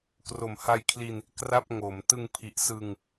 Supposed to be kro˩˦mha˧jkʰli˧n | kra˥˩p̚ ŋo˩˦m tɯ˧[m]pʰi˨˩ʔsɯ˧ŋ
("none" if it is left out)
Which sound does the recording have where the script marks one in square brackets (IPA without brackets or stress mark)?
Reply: ŋ